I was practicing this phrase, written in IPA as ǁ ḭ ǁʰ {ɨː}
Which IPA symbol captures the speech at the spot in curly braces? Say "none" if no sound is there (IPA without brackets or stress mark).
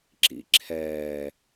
ɛː